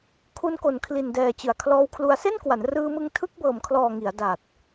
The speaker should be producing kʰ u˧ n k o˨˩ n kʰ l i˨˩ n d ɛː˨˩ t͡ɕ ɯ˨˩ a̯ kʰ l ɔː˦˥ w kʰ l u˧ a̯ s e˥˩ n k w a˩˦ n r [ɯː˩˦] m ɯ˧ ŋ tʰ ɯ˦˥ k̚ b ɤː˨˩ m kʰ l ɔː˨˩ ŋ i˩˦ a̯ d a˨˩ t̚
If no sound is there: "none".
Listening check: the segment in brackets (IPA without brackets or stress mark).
ɯː˧